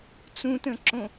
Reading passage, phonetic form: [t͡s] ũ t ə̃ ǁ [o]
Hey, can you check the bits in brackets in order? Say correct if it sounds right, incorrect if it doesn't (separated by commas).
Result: correct, incorrect